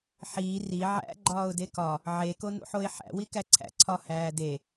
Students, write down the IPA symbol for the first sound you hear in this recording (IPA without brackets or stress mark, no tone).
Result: ħ